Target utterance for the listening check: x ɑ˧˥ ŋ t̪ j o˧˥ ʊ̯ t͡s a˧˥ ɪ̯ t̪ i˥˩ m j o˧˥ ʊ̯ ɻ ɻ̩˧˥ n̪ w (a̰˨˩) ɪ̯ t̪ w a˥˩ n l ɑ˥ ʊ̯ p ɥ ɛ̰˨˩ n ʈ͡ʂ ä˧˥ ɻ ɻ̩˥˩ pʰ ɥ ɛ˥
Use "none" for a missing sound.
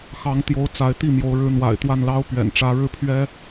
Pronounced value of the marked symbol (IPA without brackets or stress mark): a̰˨˩